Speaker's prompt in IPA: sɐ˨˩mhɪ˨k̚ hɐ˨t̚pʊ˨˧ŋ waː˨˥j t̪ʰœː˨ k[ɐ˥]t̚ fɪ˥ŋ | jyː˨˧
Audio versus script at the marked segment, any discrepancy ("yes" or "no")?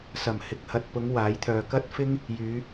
no